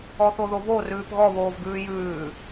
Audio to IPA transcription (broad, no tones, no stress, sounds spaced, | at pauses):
ɔ θ o ð o v o r ʉː p ɣ ɔ β oː v ɡ ʉː j ʉː